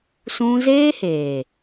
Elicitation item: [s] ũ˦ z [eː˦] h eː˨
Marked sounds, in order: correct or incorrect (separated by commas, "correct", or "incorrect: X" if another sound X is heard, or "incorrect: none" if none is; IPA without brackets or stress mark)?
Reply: correct, correct